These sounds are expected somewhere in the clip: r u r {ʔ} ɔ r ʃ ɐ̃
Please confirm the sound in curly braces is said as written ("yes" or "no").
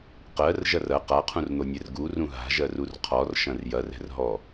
no